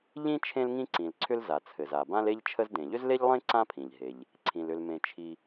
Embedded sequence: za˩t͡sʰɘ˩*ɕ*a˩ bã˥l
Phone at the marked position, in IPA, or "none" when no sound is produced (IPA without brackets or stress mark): z